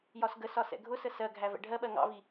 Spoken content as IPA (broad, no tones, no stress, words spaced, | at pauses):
jɒsɡəsɒ sɛ̰ɡʱʊsə sɜɡʱæ vɛ̰ɖʱɜɓɜ ŋɑ̰vi